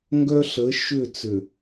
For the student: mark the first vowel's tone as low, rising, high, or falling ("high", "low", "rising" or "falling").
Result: high